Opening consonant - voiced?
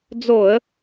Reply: yes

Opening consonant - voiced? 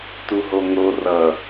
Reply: no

